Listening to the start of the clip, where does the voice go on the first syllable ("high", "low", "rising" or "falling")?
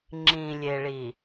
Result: low